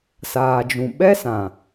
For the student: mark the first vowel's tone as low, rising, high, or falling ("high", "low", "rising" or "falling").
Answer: low